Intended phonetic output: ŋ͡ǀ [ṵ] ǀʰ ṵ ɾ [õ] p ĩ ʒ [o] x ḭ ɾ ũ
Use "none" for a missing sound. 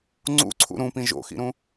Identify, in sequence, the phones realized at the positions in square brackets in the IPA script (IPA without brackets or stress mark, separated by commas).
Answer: ṵ, ũ, o̰